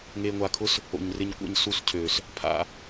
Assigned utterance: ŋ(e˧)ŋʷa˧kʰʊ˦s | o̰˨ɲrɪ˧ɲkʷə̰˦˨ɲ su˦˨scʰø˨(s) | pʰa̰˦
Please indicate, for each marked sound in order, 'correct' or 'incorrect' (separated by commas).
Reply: correct, correct